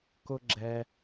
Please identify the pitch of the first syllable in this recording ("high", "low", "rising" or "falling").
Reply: high